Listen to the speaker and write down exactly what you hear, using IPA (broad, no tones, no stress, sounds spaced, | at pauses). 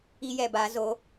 i j ɛ b a z o